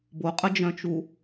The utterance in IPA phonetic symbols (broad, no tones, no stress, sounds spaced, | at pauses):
b o qʼ ə d͡ʒ œ̃ t͡ʃ u